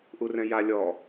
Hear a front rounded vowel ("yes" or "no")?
no